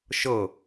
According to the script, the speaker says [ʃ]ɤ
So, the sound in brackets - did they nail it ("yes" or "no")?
yes